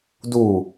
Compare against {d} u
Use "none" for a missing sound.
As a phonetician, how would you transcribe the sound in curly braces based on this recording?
d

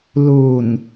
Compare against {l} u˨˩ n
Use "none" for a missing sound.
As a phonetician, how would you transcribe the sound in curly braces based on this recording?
l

